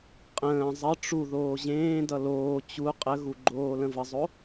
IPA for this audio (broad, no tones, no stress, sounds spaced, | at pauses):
qʼ ə̃ː zˤ ə ʈ͡ʂ u ð oː ʑ ẽː d ʌ l oː t͡ɕ u qʼ ə ɣ u ɡ͡ǃ oː l ə̃ v ə zˤ o